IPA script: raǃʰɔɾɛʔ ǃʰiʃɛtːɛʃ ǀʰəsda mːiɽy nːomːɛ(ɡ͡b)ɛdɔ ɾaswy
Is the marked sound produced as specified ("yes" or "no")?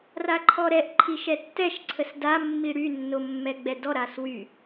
yes